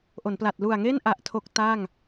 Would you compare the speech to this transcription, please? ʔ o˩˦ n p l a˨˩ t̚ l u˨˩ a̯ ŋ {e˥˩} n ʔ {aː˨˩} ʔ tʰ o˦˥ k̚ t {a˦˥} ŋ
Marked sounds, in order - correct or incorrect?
correct, incorrect: a˨˩, incorrect: a˥˩

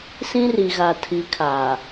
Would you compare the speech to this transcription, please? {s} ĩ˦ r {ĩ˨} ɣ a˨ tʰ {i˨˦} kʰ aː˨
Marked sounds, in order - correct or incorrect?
correct, incorrect: i˨, correct

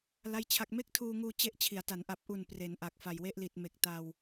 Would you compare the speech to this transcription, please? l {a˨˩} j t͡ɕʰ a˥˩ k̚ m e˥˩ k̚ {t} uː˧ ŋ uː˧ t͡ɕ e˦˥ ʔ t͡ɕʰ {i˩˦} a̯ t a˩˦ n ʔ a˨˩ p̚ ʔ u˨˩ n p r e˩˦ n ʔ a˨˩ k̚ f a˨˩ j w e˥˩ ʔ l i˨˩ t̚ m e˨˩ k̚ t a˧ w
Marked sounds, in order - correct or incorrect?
incorrect: a˥˩, incorrect: tʰ, correct

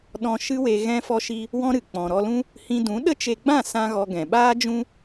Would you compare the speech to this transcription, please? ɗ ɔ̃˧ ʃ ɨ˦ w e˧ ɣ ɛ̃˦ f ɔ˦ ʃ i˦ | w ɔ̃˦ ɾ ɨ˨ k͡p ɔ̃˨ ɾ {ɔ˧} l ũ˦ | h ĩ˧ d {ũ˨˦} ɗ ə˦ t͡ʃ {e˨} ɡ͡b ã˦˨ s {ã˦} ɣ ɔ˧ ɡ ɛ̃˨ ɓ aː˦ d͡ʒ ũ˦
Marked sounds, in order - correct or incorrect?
correct, correct, incorrect: e˧, correct

